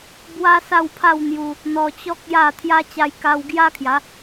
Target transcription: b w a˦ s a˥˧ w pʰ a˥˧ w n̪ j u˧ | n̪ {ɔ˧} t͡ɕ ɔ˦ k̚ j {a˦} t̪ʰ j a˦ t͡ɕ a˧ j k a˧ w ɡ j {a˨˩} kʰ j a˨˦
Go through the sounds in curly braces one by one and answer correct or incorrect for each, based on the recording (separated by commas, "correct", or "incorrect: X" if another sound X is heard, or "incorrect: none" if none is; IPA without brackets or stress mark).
correct, incorrect: a˥˧, incorrect: a˦